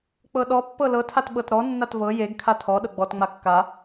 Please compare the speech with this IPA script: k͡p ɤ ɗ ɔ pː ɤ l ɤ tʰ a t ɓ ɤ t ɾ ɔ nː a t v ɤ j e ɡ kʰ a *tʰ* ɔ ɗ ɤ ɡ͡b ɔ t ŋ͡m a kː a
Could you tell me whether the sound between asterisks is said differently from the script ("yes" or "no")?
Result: no